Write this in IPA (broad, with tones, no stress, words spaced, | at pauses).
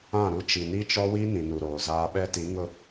ã˦˨ɾu˦ t͡ʃi˨ni˦t͡ʃɔ˦wi˦ nĩ˨nu˨ɾoː˨zaː˦ ɓɛ˦ti˨˦ŋʊ˦˨